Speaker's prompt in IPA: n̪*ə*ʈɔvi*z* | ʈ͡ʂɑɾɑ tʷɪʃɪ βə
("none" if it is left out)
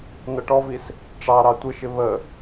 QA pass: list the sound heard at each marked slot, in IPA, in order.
ʌ, s

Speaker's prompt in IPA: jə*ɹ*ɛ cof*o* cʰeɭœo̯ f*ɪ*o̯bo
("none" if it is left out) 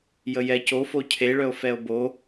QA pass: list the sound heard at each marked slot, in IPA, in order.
j, o, ɛ

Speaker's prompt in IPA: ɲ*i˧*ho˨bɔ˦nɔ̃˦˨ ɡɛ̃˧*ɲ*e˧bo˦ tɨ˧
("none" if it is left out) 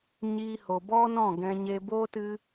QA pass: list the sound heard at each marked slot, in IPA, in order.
i˧, ɲ

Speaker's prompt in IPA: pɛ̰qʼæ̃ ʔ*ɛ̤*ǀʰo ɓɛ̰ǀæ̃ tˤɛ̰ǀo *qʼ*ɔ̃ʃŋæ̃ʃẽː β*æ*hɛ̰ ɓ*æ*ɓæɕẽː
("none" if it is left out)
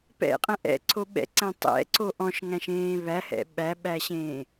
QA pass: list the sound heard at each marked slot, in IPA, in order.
ɛ̰, ʔ, æ, æ

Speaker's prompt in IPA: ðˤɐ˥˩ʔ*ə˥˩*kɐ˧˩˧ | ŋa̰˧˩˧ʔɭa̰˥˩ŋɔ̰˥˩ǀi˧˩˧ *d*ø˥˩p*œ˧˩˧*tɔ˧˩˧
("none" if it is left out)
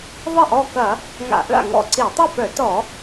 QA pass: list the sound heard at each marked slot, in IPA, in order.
ɔ˥˩, tˤ, œ˧˩˧

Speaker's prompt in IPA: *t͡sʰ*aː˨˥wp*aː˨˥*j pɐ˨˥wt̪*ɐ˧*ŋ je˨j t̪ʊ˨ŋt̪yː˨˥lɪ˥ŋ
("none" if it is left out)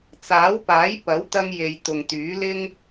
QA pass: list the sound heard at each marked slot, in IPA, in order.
t͡s, aː˨˥, ɐ˧

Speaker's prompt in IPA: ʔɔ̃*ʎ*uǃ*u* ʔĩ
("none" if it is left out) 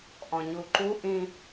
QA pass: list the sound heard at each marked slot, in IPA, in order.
ɲ, u

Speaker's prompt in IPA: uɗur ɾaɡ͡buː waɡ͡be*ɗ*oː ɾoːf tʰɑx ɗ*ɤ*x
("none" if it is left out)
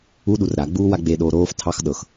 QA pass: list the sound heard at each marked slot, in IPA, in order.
ɗ, ɤ

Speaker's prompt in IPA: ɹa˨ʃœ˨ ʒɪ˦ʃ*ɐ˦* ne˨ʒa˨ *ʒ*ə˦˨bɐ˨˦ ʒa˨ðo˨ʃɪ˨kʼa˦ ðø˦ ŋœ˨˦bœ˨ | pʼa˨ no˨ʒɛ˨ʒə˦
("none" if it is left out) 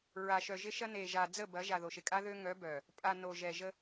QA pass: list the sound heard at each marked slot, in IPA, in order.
ɐ˦, d͡z

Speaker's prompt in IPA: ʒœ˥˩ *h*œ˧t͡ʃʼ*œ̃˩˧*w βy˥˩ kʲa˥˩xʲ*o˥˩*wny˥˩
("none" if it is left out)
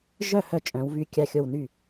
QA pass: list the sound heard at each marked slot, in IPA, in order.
h, œ̃˩˧, o˥˩

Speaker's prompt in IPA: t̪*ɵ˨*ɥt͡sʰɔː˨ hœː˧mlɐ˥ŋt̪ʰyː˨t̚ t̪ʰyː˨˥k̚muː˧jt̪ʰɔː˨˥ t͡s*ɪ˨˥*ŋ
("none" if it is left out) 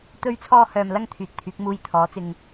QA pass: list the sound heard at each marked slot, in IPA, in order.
ɵ˨, ɪ˨

